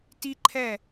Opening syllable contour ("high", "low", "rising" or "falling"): high